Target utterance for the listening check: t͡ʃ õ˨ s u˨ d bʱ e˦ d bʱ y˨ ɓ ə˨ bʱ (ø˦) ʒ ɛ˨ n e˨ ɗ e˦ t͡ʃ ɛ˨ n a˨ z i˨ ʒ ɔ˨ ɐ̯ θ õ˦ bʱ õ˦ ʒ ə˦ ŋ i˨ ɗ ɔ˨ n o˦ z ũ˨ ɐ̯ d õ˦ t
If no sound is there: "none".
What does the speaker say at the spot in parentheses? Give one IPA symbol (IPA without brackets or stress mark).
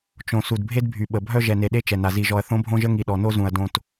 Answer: œ˦